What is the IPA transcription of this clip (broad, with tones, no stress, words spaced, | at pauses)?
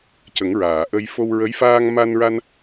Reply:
cə˨˩˦ŋɹaː˨˩˨ʔə˧j fo˧wɹə˧˥j faː˧ŋma˧nɹa˧n